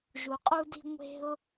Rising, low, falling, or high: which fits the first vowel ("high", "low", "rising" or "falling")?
low